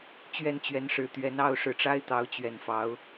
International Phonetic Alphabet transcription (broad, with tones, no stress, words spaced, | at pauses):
t͡ɕɥɛ˥˨nt͡ɕɥɛ˨˦nʂɻ̩˨˩t̪ɥɛ˨˦n ɑ˥˨ʊ̯ʂɻ̩˨˩ʈ͡ʂa˦ɪ̯ t̪ɑ˨˦ʊ̯t͡ɕɥɛ˨˩n fɑ˨˦ʊ̯